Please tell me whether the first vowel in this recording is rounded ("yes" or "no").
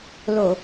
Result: yes